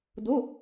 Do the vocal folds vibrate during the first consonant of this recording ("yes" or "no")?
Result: yes